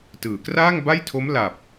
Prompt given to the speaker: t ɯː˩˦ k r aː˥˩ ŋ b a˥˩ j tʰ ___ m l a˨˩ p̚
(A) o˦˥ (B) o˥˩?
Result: A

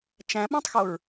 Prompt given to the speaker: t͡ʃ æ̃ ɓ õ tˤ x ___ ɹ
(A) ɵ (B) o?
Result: B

